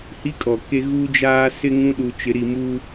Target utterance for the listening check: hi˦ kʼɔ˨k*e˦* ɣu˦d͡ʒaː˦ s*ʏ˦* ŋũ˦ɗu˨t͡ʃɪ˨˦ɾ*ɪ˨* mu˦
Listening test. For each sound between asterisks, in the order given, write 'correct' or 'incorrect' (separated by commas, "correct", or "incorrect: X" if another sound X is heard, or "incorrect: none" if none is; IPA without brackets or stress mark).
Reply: correct, incorrect: ɪ˦, incorrect: i˨